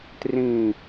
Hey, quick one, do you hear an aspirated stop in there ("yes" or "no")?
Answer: no